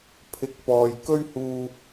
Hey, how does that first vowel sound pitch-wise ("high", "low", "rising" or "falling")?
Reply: rising